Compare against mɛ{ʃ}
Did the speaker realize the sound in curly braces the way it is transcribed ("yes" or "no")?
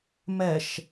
yes